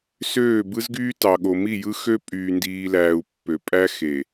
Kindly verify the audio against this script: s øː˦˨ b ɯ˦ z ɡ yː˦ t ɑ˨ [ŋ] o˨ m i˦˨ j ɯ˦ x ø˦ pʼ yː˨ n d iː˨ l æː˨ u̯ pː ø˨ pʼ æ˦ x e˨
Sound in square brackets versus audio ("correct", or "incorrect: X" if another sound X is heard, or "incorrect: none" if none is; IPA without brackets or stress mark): incorrect: ɠ